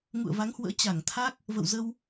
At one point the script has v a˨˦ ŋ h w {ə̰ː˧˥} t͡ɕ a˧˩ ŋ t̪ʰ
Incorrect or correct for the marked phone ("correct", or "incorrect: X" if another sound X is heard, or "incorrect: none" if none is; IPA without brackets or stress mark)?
correct